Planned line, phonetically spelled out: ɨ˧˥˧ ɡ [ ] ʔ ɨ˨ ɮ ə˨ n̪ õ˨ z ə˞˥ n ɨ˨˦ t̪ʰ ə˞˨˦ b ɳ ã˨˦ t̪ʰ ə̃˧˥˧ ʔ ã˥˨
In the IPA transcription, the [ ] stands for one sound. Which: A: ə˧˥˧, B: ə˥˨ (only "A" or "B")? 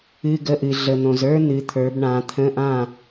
A